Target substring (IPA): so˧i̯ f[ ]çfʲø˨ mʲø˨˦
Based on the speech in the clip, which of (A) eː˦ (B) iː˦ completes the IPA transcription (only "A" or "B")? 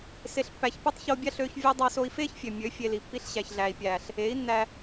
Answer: A